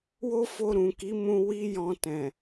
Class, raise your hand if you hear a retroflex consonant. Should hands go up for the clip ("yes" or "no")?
no